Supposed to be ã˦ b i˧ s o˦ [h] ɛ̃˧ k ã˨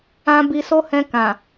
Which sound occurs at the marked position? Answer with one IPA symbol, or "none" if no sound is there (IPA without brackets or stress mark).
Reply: h